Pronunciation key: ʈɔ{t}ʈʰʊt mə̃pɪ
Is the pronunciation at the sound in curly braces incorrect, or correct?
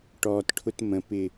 correct